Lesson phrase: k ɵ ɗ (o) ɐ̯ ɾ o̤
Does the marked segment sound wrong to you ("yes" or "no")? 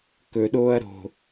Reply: yes